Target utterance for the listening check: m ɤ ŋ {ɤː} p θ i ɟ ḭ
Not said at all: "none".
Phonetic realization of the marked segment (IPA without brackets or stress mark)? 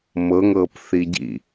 ɤː